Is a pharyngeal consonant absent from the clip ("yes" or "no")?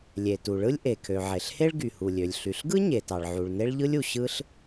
no